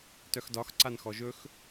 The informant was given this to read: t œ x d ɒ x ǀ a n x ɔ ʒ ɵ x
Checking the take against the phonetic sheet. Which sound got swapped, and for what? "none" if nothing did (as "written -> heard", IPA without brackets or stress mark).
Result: none